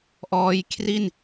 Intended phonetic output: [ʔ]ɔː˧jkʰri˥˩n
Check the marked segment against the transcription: correct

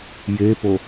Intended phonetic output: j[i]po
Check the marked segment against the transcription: incorrect: e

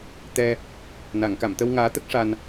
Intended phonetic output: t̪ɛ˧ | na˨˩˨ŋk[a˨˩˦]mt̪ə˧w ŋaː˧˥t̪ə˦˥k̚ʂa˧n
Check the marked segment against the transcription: incorrect: a˨˩˨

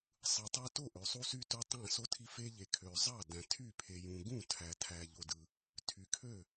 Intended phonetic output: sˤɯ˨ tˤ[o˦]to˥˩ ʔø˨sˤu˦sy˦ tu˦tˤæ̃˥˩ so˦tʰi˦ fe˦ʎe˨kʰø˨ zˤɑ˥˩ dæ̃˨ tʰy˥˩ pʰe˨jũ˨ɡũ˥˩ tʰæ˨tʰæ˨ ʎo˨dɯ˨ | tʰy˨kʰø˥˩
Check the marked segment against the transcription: correct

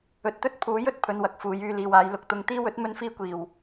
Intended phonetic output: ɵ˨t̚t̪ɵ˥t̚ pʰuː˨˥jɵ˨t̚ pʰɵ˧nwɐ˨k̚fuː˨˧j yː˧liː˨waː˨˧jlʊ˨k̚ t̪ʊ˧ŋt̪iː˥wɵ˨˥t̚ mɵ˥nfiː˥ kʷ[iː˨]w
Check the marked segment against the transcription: correct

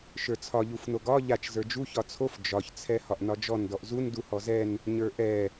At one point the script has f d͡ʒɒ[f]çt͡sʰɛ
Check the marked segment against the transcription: incorrect: none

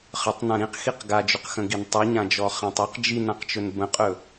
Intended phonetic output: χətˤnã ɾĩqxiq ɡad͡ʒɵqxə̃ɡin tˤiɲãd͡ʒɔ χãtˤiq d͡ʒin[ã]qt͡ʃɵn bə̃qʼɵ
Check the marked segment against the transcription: correct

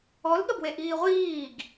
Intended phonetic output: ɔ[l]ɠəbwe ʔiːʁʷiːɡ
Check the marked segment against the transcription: correct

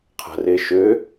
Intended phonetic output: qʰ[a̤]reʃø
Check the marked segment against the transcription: correct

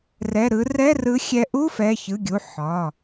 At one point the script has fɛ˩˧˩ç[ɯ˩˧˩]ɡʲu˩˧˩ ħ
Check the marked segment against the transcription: correct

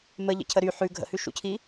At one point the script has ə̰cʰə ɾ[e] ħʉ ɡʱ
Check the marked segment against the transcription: incorrect: y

